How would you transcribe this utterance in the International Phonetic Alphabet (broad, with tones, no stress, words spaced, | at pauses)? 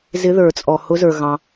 zɪ˧˥ðə˞˨˩˦ t͡sʼɔ˨hʊ˧˥zə˞˨ ɣɑ̃˨